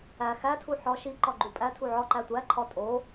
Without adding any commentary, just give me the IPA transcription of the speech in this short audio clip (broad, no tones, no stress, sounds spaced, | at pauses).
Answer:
æ x æ tʰ u ħ ɒ ʃ i ǃ ɒ ɡ͡ǃ u pʼ æ tʰ u ʕ ɒ ǃ æ tʷ æ ǃʰ ɒ tʼ o